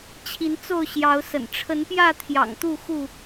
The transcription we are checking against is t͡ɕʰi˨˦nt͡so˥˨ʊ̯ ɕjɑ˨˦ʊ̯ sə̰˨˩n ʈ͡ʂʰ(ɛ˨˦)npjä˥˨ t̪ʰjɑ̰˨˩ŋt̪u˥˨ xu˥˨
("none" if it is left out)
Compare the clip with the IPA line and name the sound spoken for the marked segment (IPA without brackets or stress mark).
ə˨˦